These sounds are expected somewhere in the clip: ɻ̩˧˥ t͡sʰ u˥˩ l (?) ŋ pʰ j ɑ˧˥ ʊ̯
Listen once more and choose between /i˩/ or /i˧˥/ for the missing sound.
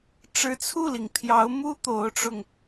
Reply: i˩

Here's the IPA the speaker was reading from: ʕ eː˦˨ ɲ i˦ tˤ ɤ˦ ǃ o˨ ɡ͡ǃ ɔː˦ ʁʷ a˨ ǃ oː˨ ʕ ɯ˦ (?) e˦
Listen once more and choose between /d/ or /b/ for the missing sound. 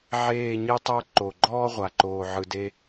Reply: d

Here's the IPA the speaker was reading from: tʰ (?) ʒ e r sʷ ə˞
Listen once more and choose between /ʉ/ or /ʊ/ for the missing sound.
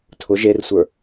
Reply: ʊ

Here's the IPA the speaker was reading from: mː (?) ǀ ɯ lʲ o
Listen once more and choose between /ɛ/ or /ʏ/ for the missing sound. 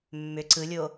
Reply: ʏ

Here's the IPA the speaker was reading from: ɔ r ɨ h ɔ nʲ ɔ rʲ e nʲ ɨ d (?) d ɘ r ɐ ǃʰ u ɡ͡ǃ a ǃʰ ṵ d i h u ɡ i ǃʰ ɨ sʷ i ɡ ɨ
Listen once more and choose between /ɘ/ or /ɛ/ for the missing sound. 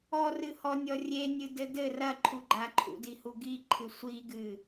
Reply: ɘ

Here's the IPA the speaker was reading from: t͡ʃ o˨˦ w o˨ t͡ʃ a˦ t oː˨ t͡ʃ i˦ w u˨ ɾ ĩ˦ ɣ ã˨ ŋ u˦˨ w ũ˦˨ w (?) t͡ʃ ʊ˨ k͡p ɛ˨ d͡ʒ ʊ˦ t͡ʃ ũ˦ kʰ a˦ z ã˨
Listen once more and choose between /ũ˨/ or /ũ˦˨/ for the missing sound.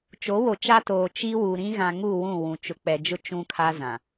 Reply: ũ˨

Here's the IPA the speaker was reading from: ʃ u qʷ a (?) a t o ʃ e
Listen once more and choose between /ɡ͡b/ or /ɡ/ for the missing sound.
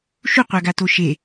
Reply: ɡ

